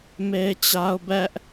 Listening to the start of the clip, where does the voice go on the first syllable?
high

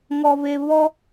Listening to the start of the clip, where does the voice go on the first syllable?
low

